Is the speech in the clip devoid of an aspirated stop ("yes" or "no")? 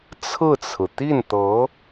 no